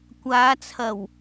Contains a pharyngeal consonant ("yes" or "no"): no